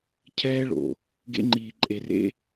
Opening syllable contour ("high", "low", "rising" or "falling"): high